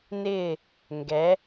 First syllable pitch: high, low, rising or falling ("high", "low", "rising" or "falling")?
falling